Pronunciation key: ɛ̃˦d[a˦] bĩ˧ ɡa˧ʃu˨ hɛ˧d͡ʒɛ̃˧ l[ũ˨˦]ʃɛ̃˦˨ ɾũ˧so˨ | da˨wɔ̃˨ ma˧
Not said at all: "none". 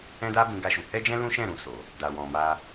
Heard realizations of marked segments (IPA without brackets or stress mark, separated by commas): a˦, ũ˦